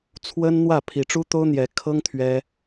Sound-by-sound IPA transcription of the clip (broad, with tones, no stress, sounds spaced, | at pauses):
t͡sʰ w ə˥ n n̪ w ä˥˩ pʰ i˧˥ ʈ͡ʂ u˥ t̪ o˥ ʊ̯ n̪ j ɛ˧˥ kʰ ɤ˥ ŋ t̪ʰ ɥ ɛ˥